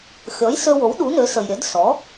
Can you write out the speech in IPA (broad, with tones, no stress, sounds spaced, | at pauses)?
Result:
xʲ ɔ˩˥ j s ø˧ w o˩˥ w ɗ u˩˥ n ø˩˥ s ə˩ j ɾʲ œ˩˥ d s ɔ˩˥